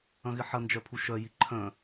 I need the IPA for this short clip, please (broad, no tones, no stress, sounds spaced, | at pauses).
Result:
ɐ̃ ɣ ɪ ħ ɐ n d͡ʒ œ pʰ u ʃ œ j i ǃʰ œ̃